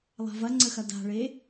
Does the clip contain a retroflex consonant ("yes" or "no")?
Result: yes